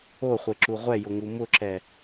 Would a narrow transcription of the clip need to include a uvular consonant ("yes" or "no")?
yes